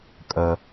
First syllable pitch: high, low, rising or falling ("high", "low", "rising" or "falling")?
low